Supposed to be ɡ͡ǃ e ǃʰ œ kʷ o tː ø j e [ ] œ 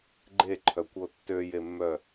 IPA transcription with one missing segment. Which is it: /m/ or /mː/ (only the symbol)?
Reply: mː